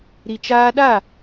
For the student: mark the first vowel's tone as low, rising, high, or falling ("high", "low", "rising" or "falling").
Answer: low